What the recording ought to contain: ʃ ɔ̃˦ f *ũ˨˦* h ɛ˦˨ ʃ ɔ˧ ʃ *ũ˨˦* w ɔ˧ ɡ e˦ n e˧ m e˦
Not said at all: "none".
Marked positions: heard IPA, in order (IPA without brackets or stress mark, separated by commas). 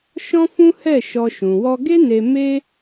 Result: ũ˦, ũ˨